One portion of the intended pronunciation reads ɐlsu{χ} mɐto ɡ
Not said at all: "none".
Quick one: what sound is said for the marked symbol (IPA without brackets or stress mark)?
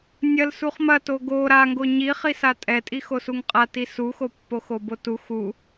χ